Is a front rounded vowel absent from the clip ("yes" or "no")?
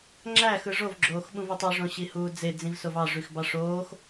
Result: no